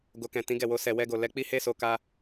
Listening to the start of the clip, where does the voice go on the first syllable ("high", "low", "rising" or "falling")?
low